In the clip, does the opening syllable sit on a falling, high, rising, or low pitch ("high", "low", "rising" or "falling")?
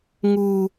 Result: high